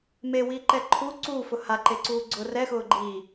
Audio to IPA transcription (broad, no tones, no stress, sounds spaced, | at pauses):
m e w iː ǃ ɛ ǃʰ u ǀ uː f ʊ h a ǃ e ǀ uː ɡ͡ǀ ʊ r ɛ x ʊː ɡ͡ǃ iː